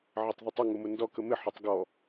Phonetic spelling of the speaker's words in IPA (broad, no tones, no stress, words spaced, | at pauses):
ʕɪtˤðɛtˤɪ ŋʊmʊndɔ kəmɪ ħʊtˤɡɔ